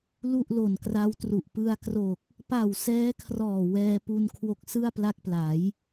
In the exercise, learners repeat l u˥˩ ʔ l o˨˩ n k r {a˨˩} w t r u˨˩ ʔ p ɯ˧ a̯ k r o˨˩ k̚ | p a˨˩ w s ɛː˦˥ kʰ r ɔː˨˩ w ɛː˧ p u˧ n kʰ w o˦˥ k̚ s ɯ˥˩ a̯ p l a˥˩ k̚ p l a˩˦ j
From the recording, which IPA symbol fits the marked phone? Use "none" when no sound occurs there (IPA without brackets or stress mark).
a˦˥